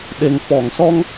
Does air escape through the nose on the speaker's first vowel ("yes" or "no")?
no